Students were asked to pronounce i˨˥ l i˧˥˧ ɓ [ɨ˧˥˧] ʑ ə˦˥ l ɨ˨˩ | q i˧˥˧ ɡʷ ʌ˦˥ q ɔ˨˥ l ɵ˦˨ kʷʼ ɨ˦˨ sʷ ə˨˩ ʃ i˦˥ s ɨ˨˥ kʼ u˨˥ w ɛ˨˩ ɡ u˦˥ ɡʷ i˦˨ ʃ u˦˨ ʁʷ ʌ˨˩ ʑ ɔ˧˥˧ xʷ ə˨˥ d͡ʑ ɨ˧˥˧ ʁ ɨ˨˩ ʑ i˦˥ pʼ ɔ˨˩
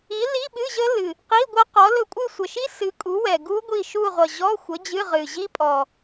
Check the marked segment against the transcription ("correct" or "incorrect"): correct